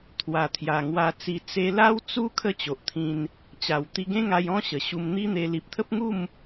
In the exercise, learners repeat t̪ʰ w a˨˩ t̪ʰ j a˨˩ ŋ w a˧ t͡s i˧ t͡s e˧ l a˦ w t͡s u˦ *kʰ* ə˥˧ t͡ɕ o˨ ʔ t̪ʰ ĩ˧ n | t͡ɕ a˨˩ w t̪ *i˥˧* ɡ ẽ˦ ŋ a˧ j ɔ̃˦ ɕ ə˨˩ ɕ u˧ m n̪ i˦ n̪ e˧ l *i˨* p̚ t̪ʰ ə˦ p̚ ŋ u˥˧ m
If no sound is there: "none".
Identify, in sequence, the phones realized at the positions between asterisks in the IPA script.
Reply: kʰ, i˧, i˨

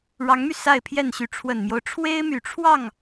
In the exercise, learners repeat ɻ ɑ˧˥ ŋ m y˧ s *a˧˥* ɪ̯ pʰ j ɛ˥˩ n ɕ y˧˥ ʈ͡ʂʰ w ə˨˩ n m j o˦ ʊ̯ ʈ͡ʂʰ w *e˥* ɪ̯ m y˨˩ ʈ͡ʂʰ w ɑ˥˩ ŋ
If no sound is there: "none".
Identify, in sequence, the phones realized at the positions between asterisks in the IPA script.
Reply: a˥˧, e˥

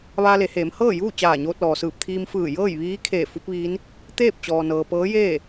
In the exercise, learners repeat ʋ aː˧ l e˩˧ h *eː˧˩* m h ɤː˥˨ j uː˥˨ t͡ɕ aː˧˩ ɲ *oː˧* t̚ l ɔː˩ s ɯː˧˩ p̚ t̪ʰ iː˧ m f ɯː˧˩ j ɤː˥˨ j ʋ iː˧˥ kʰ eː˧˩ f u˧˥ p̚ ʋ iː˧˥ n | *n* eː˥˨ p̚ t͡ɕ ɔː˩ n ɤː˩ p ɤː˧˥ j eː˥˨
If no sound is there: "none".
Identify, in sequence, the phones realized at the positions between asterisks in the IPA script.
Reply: eː˩˧, oː˧, t̪

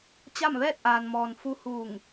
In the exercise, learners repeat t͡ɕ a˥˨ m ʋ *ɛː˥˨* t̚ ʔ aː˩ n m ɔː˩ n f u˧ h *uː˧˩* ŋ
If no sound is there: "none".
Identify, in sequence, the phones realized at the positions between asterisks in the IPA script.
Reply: ɛː˥˨, uː˧˩

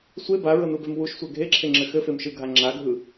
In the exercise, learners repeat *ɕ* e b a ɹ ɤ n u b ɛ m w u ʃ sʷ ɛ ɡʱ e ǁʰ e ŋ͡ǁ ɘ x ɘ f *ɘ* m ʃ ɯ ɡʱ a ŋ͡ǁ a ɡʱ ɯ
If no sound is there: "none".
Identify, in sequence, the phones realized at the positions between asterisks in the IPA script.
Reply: sʷ, e

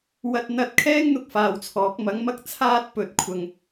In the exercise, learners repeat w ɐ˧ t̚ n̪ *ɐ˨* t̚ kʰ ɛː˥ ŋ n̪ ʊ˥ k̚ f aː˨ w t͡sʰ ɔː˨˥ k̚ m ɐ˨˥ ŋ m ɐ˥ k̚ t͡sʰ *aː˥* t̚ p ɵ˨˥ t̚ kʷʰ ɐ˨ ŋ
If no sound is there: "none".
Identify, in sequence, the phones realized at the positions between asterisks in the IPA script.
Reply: ɐ˨, aː˥

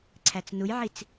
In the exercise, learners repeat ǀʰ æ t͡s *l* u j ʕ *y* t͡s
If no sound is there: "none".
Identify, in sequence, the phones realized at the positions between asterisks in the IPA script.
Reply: n, i

